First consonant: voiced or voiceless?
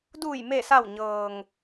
voiced